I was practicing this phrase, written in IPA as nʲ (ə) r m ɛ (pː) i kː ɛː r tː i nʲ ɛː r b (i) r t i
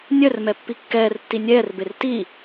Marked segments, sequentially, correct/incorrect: incorrect: œ, correct, incorrect: e

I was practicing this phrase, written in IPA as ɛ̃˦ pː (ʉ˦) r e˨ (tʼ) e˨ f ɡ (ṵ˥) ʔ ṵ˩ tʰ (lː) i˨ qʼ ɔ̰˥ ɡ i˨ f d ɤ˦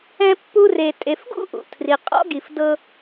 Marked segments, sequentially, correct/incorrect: incorrect: u˦, correct, correct, incorrect: r

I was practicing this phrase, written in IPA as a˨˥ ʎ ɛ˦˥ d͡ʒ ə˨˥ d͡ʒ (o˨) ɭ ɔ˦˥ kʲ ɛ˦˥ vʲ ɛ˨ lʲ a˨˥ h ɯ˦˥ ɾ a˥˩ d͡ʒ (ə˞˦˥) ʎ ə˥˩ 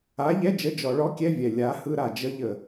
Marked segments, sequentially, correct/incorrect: incorrect: ɔ˨, incorrect: ə˦˥

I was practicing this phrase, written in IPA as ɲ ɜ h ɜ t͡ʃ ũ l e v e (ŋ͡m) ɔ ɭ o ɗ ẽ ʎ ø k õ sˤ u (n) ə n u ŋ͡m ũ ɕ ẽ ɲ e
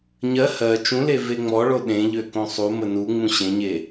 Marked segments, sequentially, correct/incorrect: correct, incorrect: m

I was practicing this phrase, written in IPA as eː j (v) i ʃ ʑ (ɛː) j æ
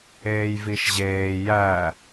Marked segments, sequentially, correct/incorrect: correct, incorrect: eː

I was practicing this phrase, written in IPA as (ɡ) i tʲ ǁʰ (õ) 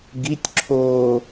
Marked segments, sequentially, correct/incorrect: correct, incorrect: o

